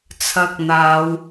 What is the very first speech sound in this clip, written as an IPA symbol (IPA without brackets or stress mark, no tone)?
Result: t͡sʰ